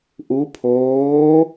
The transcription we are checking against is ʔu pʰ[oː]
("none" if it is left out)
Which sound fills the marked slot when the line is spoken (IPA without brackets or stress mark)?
oː